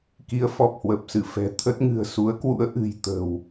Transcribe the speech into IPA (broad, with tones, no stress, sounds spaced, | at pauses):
k i˨˦ ə̯ f ɔ˨˩ p̚ h w ə˨˩ p̚ s ɨ˧˩ f ɛ̤˨˩ t̪ʰ ə˦˥ t̚ ŋ ɨ̤˨˩ ə̯ s u˨˦ ə̯ k w ṵ˧˥ ə̯ ʔ ɨ̤˨˩ j t̪ ə̤˨˩ w